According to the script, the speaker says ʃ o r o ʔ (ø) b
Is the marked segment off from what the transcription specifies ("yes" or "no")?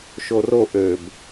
no